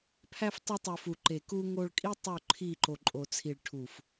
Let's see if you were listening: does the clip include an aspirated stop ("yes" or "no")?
yes